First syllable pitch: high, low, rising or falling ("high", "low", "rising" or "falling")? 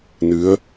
rising